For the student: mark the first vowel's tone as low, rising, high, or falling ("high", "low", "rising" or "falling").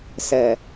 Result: low